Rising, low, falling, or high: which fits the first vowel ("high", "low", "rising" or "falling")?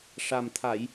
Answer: low